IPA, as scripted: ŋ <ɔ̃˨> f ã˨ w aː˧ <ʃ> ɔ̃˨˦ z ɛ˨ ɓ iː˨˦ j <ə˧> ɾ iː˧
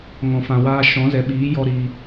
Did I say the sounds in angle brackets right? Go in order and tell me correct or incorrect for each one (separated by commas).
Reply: correct, correct, incorrect